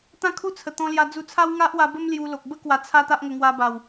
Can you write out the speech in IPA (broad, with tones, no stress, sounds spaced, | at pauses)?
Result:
t̪ ã˦ kʰ u˦ t͡sʰ ə˨˩ t̪ ɔ̃˧ l j a˧ d͡z u˧ t͡sʰ a˦ w ŋ a˦ ʔ w a˧ b ə˦ m l j u˧ l o˨ k̚ b ə˦ k w a˨˩ t͡sʰ a˧ t̪ a˦ ʔ ŋ ə˧ ŋ w a˧ b a˨˩ w